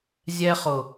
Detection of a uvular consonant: present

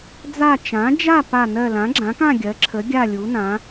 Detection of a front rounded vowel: absent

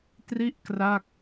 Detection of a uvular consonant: absent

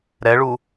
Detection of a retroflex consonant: present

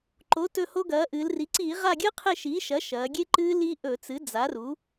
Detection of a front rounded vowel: absent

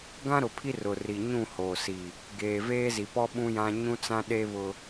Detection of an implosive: present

